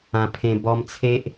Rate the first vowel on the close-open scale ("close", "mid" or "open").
open